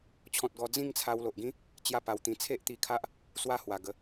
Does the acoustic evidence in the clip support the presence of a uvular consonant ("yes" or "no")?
no